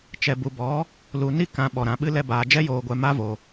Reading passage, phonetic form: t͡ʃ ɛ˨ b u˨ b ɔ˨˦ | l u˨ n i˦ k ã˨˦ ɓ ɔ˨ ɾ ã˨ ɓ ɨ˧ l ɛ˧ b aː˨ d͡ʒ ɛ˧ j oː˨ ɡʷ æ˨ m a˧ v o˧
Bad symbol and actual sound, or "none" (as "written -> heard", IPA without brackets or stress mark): æ˨ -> ɛ˨